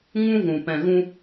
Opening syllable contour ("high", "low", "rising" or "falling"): high